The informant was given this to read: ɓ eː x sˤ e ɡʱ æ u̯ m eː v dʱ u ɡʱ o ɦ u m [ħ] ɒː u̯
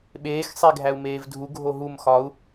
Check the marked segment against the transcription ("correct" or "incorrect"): incorrect